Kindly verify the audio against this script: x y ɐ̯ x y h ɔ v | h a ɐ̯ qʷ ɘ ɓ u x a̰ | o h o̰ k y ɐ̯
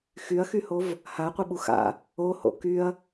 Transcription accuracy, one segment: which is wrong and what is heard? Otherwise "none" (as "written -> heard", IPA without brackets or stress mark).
ɔ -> o